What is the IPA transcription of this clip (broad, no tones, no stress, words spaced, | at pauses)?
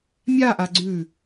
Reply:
mʲaʔa ɡ͡ǀʉ